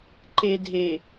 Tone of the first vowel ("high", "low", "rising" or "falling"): low